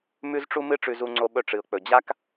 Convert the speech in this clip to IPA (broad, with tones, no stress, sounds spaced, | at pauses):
m ʉ˦ z ʈ͡ʂ u˦ m ɨ˦ ʈ͡ʂ ʉ˨ z u˨ ŋ͡ǀ o˨ ɓ ɵ˨ ʈ͡ʂ ɨ˨ ʊ̯ k͡p ɵ˨ d͡ʑ a˦ k